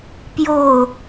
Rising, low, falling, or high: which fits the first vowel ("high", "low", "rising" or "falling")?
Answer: falling